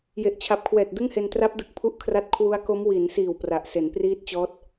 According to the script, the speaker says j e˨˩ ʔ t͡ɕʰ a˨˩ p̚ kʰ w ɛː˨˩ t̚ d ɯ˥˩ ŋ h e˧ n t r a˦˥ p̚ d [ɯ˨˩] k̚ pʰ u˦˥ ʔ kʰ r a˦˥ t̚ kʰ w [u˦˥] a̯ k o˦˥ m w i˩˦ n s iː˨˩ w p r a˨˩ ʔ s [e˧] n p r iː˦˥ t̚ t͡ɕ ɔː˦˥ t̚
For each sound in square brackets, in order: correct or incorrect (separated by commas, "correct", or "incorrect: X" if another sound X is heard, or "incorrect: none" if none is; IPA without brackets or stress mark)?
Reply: correct, correct, incorrect: e˩˦